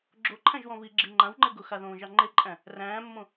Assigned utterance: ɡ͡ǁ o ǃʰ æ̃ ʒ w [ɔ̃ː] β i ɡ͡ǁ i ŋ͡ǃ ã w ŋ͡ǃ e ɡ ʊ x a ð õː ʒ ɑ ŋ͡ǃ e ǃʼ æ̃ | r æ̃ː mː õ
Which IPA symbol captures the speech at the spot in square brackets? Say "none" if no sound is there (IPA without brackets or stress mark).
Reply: ɔ̃